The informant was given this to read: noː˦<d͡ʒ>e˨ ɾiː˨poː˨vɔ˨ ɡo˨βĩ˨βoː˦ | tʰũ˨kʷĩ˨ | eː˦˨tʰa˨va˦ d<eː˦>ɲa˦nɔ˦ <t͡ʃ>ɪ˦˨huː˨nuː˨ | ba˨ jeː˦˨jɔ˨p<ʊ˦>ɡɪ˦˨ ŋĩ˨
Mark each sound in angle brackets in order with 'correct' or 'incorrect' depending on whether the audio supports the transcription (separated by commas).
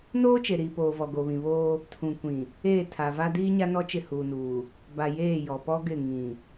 incorrect, incorrect, correct, incorrect